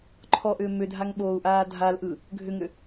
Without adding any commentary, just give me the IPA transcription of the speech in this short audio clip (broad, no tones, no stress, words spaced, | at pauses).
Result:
ǃʰɔʔʏː mʏdʱaŋɓoːu̯ʔaː dʱalʔɯ | ɡʱʏŋʏ